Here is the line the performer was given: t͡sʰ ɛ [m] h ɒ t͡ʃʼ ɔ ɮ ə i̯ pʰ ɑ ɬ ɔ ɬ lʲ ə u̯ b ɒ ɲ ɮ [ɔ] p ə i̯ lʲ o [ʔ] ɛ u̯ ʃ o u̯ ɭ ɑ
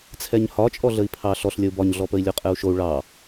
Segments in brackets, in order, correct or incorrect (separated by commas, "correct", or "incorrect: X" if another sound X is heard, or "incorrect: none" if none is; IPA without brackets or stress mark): incorrect: ɲ, correct, incorrect: qʼ